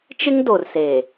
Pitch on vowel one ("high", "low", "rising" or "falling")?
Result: high